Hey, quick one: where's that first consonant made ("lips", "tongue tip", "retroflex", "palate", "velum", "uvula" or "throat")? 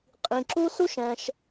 uvula